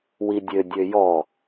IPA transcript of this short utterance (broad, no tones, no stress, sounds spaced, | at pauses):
w i dʲ ø dʲ ø j ɔ